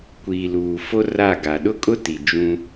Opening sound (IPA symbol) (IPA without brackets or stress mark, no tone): kʷ